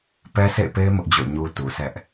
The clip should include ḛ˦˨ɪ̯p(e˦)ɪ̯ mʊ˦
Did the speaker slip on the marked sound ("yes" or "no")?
no